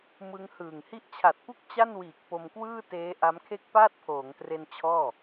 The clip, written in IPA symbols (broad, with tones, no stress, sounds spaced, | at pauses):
m ɯ˦˥ ŋ h ɯː˨˩ ŋ h i˦˥ ʔ t͡ɕʰ a˨˩ t̚ p u˥˩ k̚ t͡ɕ a˥˩ n w iː˨˩ k̚ p o˧ m k w ɯː˥˩ t eː˦˥ ʔ a˦˥ m kʰ e˥˩ k̚ p aː˥˩ t̚ pʰ oː˩˦ ŋ t r e˧ n t͡ɕʰ ɔː˥˩